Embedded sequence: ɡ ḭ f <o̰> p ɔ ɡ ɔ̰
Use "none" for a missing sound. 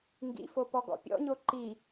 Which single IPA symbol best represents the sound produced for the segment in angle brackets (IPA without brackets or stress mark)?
o